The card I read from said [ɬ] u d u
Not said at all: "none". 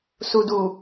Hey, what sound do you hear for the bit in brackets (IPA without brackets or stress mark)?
s